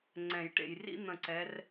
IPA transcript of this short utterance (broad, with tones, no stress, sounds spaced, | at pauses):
ŋ͡ǀ ɛ̃˨˩˦ j ʈ ḛ˨ j r ḭ˥ n̪ ə̃˦˨ ǀ ɛ˧˥ r